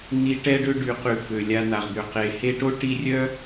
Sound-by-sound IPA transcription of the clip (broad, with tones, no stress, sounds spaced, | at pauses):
n̪ i˦ ʈ ɛ˦ ɖ ø˦ ɖ y˨ q y˨ f ø˩ lʲ a˨ n̪ a˩ ʁ d̪ ø˩ q e˩ h e˦ ʈ o˥ ʈ i˦ rʲ œ˥